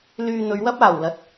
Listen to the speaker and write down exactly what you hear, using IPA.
l yː˧ n̪ ɵ˨˧ ɥ w ɐ˥ p̚ aː˨˩ w l ɐ˨ t̚

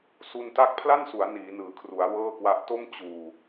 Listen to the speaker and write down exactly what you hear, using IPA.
s u˧ n t a˦˥ k̚ pʰ l a˥˩ n s u˩˦ a̯ n iː˩˦ n ɯː˩˦ kʰ r u˩˦ a̯ w ɤː˥˩ k w a˦˥ ʔ t o˥˩ m t͡ɕ uː˧

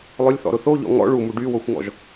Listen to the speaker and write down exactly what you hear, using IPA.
lˠ ʊ lʲ θ ɔ̰ ɾ ʊ θ o ʎ ɔ̰ ŋ ɔ̰ ɭ u m u ɖ y w o xʷ ŋ ɔ̰ ʒ

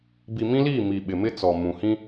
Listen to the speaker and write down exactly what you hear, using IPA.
b i˨ m ĩ˦ l iː˦˨ m i˨ ɓ ɪ˨ m ɪ˦ t͡s ɔ˨ m ũ˨ h ĩ˦

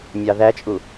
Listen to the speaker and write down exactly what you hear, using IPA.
mʲ ɑ ð æ t͡ʃʼ u

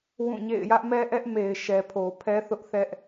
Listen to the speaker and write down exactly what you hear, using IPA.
w ũ˦˨ ɲ ḛ˦˨ ɪ̯ j ä˦ ʔ m ɛ˦ ʔ ɛ˦ ʔ m e˨ ɪ̯ ʃ ɛ˨ pʰ o˨ pʰ ɛ˦ θ ʊ˦ ʔ θ ɛ˦ ʔ

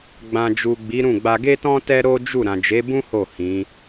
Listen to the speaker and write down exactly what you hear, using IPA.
ɡ͡b ã˨ d͡ʒ u˨ ɡ͡b i˨˦ ɾ ũ˦˨ ɡ͡b a˧ ɡ e˦ t ɔ̃˦ t ɛ˦ ɾ o˦ d͡ʒ u˦˨ ɾ ã˨ d͡ʒ e˨˦ b ũ˦ h o˦˨ h ĩ˨˦

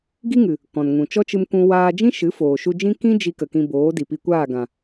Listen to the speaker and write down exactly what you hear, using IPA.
ɡ i˦ ŋ ɨ˨ | k ɔ̃˨ n ŋ ũ˨ t͡ʃ ɔ˦ t͡ʃ ɨ˧ m kʷ ũ˧ w aː˧ d͡ʒ ĩ˦ ʃ ɨ˨˦ f oː˨ ʃ u˧ d͡ʒ ĩ˦ k ĩ˦ d͡ʒ i˧ k ə˨ k ĩ˧ b oː˨˦ d i˨ p i˧ kʷ aː˦˨ ɡ ã˨

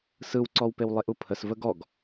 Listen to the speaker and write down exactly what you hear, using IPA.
s ɯ w ǀ ɔ w p e w lˠ e ʔ u pʰ ə s v ə ɡ ɔ ɡ

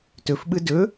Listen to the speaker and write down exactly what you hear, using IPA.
t ɵ f ɓ ɯ d ɵ

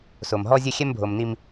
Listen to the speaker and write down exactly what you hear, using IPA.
s o˨ m ɦ ɔ˦ zʲ ɘ˦ xʲ ɛ˦ m bʱ o˨ m n i˦ m

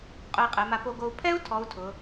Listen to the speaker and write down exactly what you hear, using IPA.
qʼ ʊ˧ i̯ qʼ ɛ˩˧ m a˧ p o˧ ɡ o˧ u̯ pʰ ɛ˥ u̯ tʰ ɔ˧˥ u̯ tʰ ʊ˩˧

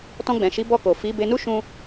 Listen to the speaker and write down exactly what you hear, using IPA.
t ɔ̃˧ ɡ͡b ɛ̃˨ ʃ i˨˦ b ɔ˧ k o˨ f i˨˦ b e˧ n u˦ ʃ ũ˦

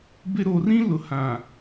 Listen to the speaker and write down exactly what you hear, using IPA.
b ɪ˦ ɾ o˨ r ĩ˦ l ʊ˨ h ã˨

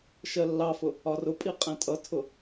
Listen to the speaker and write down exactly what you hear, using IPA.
ʃ ɜ lː ɑ f ʊ | ɒ r ʊ pʼ i qʼ ɛ̃ tʼ ʌ tʰ ʊ

